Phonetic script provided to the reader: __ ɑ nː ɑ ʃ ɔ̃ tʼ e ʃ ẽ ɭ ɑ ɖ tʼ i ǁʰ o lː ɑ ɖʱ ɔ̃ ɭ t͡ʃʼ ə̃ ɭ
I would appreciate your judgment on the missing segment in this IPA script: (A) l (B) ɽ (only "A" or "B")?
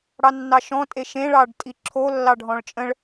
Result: B